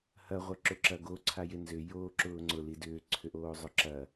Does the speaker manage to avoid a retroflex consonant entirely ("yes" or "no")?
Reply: yes